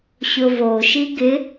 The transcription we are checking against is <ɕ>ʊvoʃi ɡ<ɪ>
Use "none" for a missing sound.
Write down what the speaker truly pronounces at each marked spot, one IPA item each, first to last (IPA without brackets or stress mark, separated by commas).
ɕ, ɪ